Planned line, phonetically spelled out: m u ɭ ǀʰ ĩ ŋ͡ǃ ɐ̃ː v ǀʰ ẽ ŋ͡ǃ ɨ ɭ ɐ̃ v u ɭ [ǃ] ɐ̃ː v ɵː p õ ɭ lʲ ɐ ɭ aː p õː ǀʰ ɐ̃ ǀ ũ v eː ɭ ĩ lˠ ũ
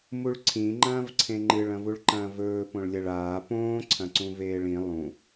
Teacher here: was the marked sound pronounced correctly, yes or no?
yes